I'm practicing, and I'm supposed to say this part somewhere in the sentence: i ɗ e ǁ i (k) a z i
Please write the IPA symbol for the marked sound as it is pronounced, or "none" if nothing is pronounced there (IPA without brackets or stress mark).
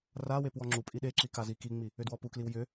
k